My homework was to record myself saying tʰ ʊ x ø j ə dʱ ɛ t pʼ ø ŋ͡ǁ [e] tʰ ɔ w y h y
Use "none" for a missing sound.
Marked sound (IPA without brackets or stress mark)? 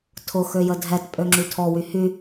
y